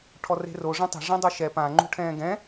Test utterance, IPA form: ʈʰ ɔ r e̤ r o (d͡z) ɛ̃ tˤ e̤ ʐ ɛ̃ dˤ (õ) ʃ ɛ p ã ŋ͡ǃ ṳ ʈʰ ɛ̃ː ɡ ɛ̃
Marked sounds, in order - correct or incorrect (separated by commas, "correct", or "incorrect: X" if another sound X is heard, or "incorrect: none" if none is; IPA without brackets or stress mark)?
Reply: incorrect: ʐ, incorrect: o